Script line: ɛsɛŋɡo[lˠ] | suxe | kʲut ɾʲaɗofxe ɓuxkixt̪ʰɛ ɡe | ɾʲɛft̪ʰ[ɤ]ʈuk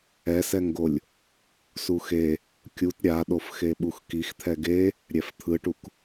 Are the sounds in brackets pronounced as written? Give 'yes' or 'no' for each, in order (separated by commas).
no, no